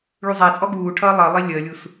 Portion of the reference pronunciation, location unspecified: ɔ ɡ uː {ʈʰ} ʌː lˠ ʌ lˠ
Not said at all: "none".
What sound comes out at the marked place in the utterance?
ʈʰ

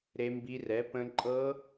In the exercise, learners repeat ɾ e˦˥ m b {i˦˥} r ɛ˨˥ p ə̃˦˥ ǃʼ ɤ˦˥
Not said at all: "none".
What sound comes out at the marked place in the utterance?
i˦˥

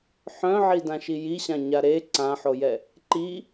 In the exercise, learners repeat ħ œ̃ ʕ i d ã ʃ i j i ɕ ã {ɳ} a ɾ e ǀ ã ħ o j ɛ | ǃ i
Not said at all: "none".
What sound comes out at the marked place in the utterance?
ɲ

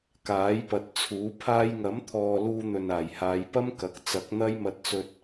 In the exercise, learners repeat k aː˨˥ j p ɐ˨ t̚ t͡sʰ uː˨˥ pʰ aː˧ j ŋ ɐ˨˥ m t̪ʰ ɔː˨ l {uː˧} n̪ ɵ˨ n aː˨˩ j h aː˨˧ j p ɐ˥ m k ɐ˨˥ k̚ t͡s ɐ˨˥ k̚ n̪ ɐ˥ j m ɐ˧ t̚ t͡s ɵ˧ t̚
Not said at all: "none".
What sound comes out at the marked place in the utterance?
uː˧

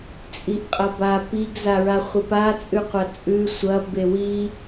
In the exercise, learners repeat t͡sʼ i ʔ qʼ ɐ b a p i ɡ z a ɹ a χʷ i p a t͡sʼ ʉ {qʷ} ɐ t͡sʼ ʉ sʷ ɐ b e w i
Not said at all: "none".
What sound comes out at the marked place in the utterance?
qʷ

